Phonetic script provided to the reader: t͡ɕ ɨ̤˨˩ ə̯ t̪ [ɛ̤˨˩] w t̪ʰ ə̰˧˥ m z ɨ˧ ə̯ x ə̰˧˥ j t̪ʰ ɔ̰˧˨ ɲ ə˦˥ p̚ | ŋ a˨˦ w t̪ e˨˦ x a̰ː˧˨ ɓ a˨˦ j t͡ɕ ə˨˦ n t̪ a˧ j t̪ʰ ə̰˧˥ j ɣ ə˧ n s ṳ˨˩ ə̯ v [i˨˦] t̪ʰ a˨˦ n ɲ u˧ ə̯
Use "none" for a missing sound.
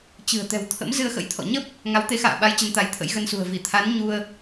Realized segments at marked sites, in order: ɛ̤˨˩, i˧˩

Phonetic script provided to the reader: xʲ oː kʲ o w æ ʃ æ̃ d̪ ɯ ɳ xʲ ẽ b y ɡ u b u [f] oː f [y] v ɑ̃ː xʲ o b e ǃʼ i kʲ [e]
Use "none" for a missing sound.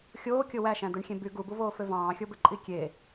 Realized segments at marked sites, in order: v, ø, e

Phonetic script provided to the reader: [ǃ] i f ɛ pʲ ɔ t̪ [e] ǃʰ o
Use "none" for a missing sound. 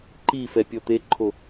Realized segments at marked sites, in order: ǃ, e

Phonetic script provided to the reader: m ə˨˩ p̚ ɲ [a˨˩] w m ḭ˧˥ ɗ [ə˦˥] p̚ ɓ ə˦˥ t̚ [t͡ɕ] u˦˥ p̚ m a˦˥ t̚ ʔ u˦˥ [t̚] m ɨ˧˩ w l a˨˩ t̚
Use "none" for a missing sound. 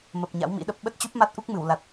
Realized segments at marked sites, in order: a̰˧˥, ə˦˥, t͡ɕ, k̚

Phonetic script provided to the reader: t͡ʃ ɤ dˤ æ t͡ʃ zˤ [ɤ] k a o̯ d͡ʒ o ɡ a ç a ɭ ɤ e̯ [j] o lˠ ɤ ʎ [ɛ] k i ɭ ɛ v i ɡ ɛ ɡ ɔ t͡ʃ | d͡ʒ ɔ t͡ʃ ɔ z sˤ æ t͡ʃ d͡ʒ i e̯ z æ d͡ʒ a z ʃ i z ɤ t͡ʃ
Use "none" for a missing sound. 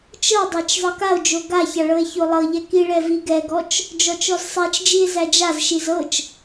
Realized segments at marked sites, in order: ɤ, ç, ɛ

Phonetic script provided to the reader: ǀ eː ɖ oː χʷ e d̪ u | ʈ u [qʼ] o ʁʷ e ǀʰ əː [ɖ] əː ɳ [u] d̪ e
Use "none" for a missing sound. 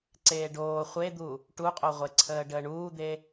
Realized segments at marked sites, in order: qʼ, ɖ, uː

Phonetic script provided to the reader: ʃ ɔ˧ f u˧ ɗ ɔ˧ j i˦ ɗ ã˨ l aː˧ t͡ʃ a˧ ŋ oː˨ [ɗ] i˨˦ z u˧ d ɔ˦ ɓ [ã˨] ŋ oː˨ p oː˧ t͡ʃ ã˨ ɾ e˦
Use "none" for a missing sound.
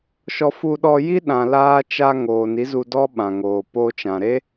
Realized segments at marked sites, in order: n, ã˨

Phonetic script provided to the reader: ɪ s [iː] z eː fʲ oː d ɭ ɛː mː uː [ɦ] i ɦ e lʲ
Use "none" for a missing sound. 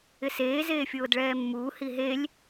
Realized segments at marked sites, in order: eː, h

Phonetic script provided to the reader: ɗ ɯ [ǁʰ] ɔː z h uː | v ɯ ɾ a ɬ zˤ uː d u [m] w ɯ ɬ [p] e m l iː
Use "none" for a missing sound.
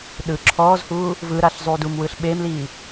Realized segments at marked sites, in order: ǁʰ, m, ɓ

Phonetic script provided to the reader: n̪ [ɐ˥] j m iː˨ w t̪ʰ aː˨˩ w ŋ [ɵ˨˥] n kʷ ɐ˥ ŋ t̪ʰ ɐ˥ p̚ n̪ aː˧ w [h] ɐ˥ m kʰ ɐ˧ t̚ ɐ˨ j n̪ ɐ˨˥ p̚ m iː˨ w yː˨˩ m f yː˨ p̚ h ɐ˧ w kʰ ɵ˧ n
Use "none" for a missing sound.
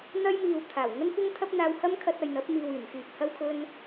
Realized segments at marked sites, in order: ɐ˥, ɵ˥, h

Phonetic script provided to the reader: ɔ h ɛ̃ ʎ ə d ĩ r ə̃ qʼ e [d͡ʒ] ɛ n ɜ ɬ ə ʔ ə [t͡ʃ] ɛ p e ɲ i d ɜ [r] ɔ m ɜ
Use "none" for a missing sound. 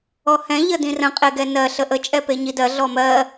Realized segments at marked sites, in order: ɡ, t͡ʃʼ, ɮ

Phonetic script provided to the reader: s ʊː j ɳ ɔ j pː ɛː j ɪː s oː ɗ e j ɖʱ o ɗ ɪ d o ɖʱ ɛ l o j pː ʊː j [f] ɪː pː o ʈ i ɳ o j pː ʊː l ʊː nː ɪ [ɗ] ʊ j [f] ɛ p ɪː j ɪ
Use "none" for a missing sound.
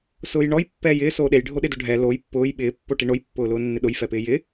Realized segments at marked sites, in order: ɓ, ɗ, f

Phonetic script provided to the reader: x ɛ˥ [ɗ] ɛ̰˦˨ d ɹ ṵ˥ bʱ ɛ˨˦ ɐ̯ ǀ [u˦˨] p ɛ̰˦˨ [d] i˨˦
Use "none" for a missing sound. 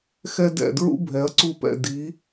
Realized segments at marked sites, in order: d, u˦˨, d

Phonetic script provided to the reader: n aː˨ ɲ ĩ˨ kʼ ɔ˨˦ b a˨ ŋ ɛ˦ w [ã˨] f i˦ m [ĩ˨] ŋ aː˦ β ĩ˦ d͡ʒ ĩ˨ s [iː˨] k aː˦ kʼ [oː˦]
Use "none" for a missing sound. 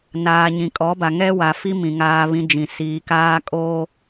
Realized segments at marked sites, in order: a˨, ĩ˨, iː˨, oː˦

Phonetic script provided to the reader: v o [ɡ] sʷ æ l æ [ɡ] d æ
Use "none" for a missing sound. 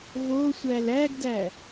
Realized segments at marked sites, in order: none, ɡ

